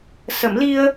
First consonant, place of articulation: alveolar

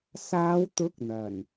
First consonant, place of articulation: alveolar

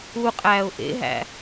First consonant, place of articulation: uvular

